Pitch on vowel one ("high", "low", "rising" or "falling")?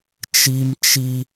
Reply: high